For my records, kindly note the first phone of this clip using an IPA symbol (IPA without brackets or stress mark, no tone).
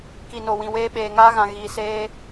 k